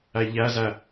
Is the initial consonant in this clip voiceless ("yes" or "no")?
no